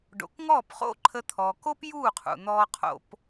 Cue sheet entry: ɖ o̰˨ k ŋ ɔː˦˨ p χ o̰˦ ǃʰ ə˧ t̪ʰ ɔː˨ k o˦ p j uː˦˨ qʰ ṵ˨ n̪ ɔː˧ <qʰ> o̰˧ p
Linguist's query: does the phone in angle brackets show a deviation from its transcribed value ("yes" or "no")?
no